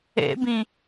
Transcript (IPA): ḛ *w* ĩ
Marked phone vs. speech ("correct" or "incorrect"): incorrect